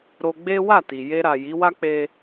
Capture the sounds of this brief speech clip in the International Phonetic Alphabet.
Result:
ɾ o˧ ɡ͡b e˦ w a˦˨ t i˨ j e˧ ɾ a˨ j i˨˦ w a˦ k͡p e˦

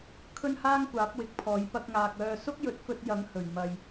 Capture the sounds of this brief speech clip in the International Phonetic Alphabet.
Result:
kʰ ɵ˥ n h aː˥ ŋ kʷ aː˨˥ p̚ w ɪ˨˥ k̚ pʰ ɔː˨˥ j p ɐ˧ k̚ ŋ aː˨ k̚ œː˧ s ʊ˥ k̚ j ɵ˨˥ t̚ f ɵ˧ t̚ j ɐ˨˥ ŋ h ɵ˨˩ ɥ m ɐ˨ j

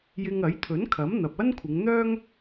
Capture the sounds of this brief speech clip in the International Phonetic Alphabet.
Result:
j ɪ˧ ŋ ɐ˨˥ j t̪ʰ ɵ˨˥ n kʰ ɐ˨˥ m n̪ ɐ˨ p̚ ɐ˥ n kʷʰ ɪ˨˧ ŋ n̪ œː˥ ŋ

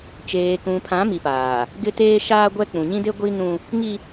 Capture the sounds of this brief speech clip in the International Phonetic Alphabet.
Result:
t͡ʃ eː˨ k ũ˨ pʰ ã˨˦ m i˨ p aː˨ | ɡ ɪ˦ t eː˦ ʃ aː˦ ɡʷ ɛ˦ k͡p ũ˨ ɲ ĩ˦ d e˦ ɡʷ i˦ n ũ˦ | ŋ i˦

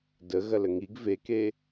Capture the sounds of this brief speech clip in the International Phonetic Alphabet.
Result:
d ə ɣ ɐ l ə ŋ i ɡ v e k e

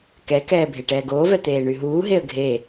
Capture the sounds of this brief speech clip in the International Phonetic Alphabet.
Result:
k ɛ k ɛː bʱ e ʈ ɛː ɡ oː v ɛ t̪ eː ɳ y ɦ uː ɦ e ə̯ ɡʱ e

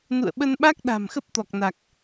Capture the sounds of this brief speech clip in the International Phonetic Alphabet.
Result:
n ṵ˧˨ ə̯ ɓ ə˧ n ɓ a˦˥ k̚ ɗ a̤˨˩ m x ə˦˥ p̚ t̪ ɔ˨˩ k̚ n a˨˩ k̚

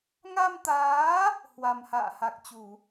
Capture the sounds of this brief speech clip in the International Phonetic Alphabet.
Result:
ŋ a˧ m t̪ aː˨˦ | h w a˨˩ m h a̰ː˧˨ h a˨˩ k̚ t͡ɕ u˧˩˨

